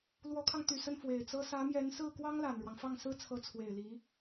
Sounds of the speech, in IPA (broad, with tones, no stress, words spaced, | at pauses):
lwɔ˧˥kʰɑ˧ŋt̪y˨˩sə˥˩n fwe˨˩ɪ̯t͡sɤ˥ sä˧˥mjɛ˧˥n sɹ̩˥˩kwɑ˥ŋ la˨˩nɻwɑ˦ŋ fɑ˥˩ŋsɹ̩˥t͡sʰɤ˧˥ t͡sʰwe˨˩ɪ̯li˧˥